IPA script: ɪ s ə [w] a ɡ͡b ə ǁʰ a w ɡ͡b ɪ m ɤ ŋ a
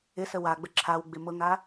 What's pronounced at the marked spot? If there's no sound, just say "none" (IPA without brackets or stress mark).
w